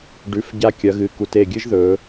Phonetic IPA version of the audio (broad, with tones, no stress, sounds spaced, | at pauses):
ɖ ʉ˩˧˩ f ɟ a˧ kʲ ɐ˩˧ ɣ ɨ˩˧˩ k u˩˧ t e˧˩ ɡʲ ɨ˦˥ ʒ ð ɵ˩˧